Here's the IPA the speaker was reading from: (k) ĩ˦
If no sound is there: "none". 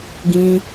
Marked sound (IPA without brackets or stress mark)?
ɡ